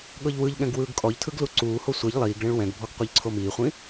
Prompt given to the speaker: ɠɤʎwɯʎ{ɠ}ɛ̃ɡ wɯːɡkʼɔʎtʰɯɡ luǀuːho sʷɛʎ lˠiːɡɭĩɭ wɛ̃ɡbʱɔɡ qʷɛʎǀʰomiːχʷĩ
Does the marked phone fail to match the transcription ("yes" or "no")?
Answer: no